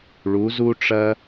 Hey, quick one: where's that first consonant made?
retroflex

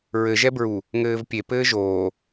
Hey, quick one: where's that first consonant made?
tongue tip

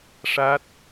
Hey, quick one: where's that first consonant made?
retroflex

